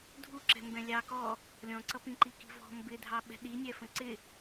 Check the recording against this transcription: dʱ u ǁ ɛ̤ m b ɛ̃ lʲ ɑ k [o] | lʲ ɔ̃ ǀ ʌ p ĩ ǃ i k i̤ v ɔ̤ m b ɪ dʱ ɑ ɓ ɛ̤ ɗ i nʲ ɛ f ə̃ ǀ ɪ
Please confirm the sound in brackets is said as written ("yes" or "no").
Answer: no